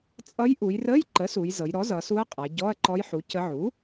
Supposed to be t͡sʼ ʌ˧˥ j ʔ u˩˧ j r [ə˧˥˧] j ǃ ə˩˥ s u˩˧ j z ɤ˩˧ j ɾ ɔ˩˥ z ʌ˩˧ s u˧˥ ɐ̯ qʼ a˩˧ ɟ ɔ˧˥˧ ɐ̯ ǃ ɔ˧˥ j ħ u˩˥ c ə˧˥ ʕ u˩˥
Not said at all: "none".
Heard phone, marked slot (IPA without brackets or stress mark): ə˧˥˧